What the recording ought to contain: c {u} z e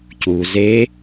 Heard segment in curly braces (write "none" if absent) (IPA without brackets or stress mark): u